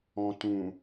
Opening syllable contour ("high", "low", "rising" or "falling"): low